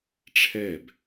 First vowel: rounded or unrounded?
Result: unrounded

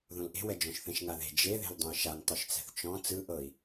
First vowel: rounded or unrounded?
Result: rounded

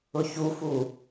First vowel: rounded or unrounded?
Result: rounded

